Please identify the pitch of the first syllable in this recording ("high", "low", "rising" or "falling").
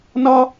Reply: high